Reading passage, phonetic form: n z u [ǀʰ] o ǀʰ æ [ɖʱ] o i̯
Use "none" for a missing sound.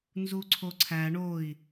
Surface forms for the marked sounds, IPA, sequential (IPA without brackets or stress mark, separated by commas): ǀʰ, ɳ